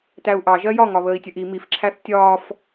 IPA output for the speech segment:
t æ u̯ ʔ ɑ ʒ ɜ j ɒ ŋ ɒ β əː i̯ tʲ ə ʔ i m i f ǁʰ æ θ tʲ ɒː f

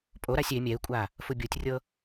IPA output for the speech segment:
pʼ o ɾ a sʲ e mʲ ɛ ɪ̯ kʷʼ a | f u bʲ o tʲ rʲ ɤ

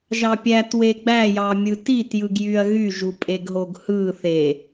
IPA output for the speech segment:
ʒ ɑ pʲ æ t w e ɡ͡b æ j ɑ mʲ ɯ t i t j ɯ ɡ j y ɐ̯ ɣ y ʒ u pʼ e ɡ ɦ o ɡ h ɯ θ e

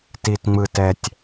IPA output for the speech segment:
t i˨ t ŋ͡m ɯ˨ t ɛ˨ tʲ

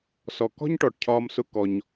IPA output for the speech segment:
s ɔ˨ k ɔ̤˦ ɲ ʈ ɔ˨ ʈ cʰ ɒː˧ m s ʊ˧ k ɔ˧ ɲ

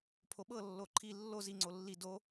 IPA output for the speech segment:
pʰ o ɓ ɤ lː o ǃʰ i lː o z i ŋ͡ǀ o lː i d o

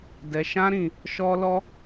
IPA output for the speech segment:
d ɛ˧ ʃ ã˦ ɾ ĩ˧ | ʃ ɔ˦ l ɔ˦

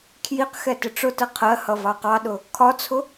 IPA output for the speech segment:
kʰ j i q x ɛ t ɪ ʈ͡ʂ ʊ t ə qʰ ɜ h ʌ v ɑ q ɑ ɗ ʊ | kʰ ɒ t͡sʰ ʊ

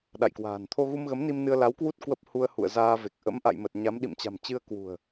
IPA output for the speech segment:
ɗ a̰˧˨ j k w a̤ː˨˩ n t̪ʰ o˧ ɣ u˧ m ɣ ə˨˦ m n i˧ m n ɨ˧ ə̯ l a˨˦ w k w u˦˥ t̚ k w ə˦˥ p̚ h u˧ ə̯ h ṵ˧˨ ə̯ z aː˧ v e˨˩ k̚ ʔ ə̰˧˥ m ʔ a̰˧˨ j m ə˨˩ t̚ ɲ a˨˦ m ɗ ḭ˧˨ m t͡ɕ a̤˨˩ m t͡ɕ ɨ˧ ə̯ k w ṳ˨˩ ə̯

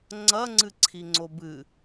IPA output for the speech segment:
ŋ͡ǀ ɐ ŋ͡ǀ ɨ ǀʰ i ŋ͡ǀ o b ɨ

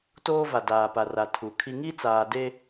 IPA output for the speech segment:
t oː˦ v a˨ d aː˨ p a˨ r a˨ tʰ u˨ kʰ i˦ ŋ i˦ t͡s aː˨ d e˦

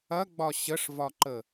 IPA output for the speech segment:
ɐ ɡ͡b ɒ ɕ ə ʂ v ɒ ǃ ə

